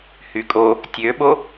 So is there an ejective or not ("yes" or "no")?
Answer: yes